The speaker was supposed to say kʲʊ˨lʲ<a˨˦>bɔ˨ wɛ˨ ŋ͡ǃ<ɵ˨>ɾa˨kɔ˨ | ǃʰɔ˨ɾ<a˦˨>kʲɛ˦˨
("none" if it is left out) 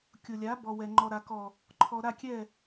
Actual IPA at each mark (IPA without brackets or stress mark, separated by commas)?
a˨˦, ɔ˨, a˦˨